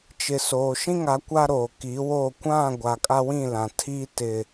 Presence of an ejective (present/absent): present